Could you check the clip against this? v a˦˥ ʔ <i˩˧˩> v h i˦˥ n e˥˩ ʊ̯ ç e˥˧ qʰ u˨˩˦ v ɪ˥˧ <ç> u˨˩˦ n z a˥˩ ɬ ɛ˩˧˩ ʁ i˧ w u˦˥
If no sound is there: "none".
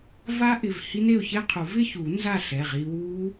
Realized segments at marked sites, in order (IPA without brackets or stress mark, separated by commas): ɪ˩˧˩, ç